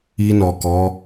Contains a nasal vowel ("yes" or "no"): no